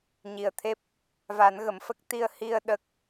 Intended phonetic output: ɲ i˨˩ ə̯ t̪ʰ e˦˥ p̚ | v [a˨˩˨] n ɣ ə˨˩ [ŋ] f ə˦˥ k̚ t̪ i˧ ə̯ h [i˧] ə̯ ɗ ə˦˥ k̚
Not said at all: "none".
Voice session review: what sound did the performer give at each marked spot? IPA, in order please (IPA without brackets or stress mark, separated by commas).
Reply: a˨˩˦, m, i˧